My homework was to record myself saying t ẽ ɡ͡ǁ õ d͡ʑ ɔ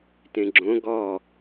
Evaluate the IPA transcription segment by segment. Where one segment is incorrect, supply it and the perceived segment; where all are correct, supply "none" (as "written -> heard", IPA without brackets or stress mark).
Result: d͡ʑ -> ɡ